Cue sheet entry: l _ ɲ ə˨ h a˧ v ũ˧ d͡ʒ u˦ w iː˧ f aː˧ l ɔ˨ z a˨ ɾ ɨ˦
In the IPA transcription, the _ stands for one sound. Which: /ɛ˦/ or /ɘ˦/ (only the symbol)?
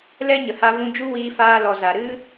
ɛ˦